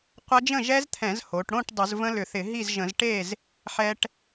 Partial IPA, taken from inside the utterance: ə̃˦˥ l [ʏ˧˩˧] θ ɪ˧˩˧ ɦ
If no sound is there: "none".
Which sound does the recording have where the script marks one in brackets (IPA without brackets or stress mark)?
ʏ˧˩˧